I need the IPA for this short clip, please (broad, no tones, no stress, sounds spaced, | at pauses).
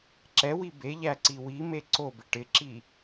ǁ ɛ w i b e ʎ æ ǀ i w i m e ǀ o b ɪ ʈ ɪ ǁ i